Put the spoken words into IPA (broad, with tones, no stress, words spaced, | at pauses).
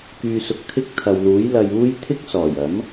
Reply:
kyː˧sʊ˧k̚ t̪ʰɪ˥k̚ t̪ʰɐ˨wluː˨˥j lɐ˧juː˥j t̪ʰɪ˥k̚sɔː˨˩jɐ˨˥m